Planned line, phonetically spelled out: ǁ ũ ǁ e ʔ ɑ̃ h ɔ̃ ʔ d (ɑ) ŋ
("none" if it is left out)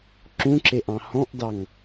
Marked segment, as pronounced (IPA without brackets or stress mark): ɑ